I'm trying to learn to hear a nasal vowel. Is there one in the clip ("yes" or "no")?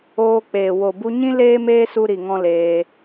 yes